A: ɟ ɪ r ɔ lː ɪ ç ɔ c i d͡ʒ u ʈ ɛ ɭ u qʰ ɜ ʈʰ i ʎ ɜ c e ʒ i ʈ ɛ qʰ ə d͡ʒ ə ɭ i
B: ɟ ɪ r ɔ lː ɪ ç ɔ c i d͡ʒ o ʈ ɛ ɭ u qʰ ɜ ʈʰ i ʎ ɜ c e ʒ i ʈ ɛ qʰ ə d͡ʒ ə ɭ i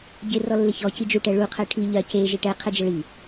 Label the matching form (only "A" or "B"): A